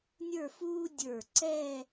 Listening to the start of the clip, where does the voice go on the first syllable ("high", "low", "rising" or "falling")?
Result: falling